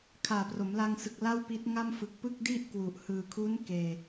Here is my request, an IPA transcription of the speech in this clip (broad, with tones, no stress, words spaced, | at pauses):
kʰaː˨˩pro˩˦mla˧ŋsɯ˨˩k̚ la˥˩wpi˦˥t̚ ŋa˥˩mfɯ˨˩k̚ pɯ˥˩k̚di˥˩ʔkwu˨˩ʔ hɯː˨˩kʰu˦˥n keː˧